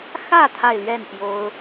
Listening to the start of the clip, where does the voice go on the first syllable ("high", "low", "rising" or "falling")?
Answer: falling